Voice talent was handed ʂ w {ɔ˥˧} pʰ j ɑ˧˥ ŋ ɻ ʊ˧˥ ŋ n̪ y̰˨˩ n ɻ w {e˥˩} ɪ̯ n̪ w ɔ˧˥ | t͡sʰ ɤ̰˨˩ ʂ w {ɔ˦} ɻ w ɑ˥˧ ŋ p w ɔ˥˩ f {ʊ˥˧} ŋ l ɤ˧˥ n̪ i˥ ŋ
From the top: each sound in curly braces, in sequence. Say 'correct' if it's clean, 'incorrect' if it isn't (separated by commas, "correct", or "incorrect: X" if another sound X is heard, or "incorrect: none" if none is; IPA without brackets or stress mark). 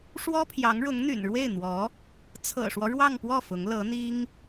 incorrect: ɔ˥, correct, correct, incorrect: ʊ˧˥